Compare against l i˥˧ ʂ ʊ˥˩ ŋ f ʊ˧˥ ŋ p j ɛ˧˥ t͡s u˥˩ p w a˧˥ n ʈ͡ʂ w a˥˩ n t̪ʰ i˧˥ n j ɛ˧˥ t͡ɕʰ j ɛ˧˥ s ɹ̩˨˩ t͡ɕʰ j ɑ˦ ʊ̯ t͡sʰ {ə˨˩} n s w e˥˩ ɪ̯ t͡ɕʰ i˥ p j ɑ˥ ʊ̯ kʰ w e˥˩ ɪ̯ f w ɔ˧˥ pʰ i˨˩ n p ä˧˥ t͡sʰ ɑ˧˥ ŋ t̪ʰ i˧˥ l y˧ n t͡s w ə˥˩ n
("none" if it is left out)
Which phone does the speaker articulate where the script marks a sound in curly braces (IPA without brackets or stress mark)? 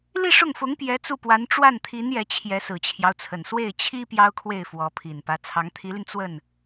ə˨˩